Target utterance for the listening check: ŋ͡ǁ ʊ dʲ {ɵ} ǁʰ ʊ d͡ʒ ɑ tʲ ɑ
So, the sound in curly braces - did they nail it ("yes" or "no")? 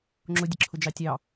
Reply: no